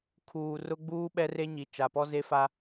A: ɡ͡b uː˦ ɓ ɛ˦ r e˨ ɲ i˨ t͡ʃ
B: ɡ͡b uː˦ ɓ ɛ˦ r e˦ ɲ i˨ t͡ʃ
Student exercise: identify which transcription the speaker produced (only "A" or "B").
B